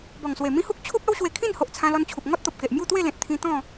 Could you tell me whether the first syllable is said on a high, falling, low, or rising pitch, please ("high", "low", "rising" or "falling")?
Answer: low